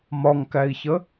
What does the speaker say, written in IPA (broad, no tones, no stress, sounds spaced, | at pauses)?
m ɒ ŋ k æ i̯ ç ə